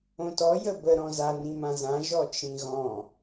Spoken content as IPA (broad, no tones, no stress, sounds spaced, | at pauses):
õ t ɔ j ə b ə ɾ ɔ̃ z a n ĩ m ã z ã ʒ ɔ t͡ʃ ĩ ɣ ɔ̃